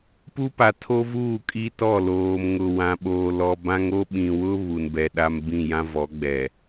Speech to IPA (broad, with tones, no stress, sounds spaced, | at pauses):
p u˦ p a˨ tʰ o˦ v uː˦˨ kʼ i˦ t ɔ˦˨ l oː˨ m ŋ ʊ˨ w ã˨ ɓ oː˨ l ɔ˨ b ã˦ ŋ o˦ ɓ ĩ˨ w ʊ˦ β u˨ n b ɛ˨ ɗ a˦ m b ĩ˦˨ j ã˦ v ɔ˨˦ ɡ͡b ɛ˨